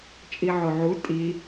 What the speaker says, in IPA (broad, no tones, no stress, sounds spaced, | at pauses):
t͡ʃʼ i ʕ o ʕ u tʼ i